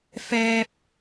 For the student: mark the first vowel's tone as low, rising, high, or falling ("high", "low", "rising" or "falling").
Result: high